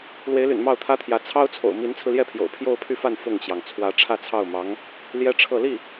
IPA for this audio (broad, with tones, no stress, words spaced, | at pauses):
lwe˧˥ɪ̯ly̰˨˩n mɑ˥˩ʊ̯t̪ʰä˥t̪ʰjä˧˥ t͡sʰɑ˥ʊ̯t͡sʰo̰˨˩ʊ̯ mi˧˥nt͡sʰɹ̩˧ljɛ˥˩pʰjo̰˨˩ʊ̯ pʰjo˥˧ʊ̯pʰy˥˧fa˥˧n fʊ˥˩ŋt͡ɕjɑ˩ŋ t͡sʰwä˧˥ ʈ͡ʂʰä˥˧t͡sʰɑ˥˩ʊ̯mɑ˧˥ŋ | ljɛ˥ʈ͡ʂʰɤ˥˧ li˥˩